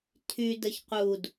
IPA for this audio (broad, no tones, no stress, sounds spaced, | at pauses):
tʰ y d ə ç q u d